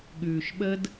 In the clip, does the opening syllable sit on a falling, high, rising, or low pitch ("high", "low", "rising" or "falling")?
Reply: low